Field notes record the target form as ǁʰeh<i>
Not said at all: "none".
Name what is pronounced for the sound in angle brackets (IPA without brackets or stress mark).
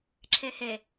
e